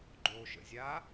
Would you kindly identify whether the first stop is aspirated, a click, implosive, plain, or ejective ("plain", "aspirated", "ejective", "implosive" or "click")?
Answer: click